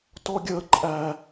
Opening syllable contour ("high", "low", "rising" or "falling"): high